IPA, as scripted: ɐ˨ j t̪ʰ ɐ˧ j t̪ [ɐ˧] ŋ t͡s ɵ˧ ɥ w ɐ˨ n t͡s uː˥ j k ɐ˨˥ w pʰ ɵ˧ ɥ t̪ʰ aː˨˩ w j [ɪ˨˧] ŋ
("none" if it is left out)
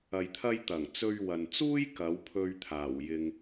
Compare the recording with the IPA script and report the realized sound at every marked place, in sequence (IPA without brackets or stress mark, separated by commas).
ɐ˨˩, ɪ˧